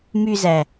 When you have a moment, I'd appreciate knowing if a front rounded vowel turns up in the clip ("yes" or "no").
yes